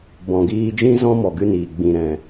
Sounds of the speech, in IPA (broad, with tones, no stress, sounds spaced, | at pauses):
b ɔ̃˨ ɡ iː˧ d͡ʒ ĩ˦ z ɔ̃˦ m ɔ˨ ɡ ɨ˧ n iː˨ ɡ͡b ĩ˨ ɾ ɛ̃˨